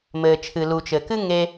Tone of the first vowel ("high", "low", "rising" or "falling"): low